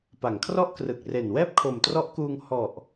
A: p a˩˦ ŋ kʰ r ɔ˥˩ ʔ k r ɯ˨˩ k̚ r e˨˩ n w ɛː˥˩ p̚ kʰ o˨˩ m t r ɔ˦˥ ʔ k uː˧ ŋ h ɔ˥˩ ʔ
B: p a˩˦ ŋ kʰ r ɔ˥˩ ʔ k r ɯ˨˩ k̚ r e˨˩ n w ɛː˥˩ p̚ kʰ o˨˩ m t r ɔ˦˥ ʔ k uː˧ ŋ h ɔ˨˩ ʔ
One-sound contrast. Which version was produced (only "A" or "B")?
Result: B